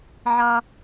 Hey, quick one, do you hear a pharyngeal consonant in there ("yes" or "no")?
yes